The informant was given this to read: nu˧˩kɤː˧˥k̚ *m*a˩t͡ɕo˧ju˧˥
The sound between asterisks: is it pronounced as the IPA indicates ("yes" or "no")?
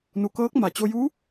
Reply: yes